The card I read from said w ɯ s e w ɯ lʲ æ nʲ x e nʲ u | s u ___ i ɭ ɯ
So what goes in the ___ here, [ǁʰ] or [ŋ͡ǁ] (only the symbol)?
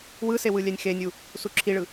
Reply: ǁʰ